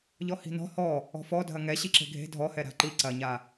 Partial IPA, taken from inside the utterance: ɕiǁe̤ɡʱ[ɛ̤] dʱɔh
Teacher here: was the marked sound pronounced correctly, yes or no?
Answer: no